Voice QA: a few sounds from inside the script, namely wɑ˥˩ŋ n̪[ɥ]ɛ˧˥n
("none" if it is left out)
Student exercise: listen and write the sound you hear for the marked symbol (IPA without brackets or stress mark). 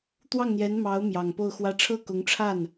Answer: j